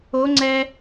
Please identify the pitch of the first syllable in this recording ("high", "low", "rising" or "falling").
rising